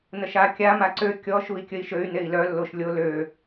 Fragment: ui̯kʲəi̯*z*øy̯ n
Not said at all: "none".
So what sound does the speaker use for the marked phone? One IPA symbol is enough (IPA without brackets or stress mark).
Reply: ʃ